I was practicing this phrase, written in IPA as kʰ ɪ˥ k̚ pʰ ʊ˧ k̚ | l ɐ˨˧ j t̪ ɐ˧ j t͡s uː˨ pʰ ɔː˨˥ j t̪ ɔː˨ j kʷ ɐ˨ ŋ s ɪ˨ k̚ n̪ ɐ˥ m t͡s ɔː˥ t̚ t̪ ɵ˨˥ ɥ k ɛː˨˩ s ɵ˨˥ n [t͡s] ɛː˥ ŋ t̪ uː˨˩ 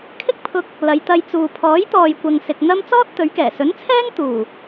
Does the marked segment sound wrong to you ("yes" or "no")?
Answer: yes